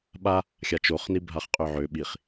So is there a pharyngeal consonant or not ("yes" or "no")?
yes